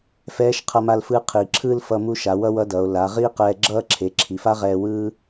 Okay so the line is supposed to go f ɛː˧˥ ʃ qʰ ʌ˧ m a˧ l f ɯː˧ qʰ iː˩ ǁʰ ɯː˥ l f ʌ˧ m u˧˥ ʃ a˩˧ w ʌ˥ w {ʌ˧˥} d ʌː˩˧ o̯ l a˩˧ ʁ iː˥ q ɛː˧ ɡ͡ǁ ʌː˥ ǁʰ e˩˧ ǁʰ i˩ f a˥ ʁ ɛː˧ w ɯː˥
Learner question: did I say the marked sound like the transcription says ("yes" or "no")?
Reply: yes